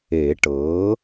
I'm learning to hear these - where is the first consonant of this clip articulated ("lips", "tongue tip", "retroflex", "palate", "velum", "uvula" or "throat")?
retroflex